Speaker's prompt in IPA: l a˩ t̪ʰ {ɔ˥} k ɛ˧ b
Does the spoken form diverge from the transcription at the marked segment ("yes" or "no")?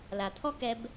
no